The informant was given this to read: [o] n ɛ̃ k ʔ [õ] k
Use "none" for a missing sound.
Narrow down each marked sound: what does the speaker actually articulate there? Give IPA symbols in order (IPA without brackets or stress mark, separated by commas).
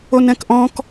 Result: o, ɔ̃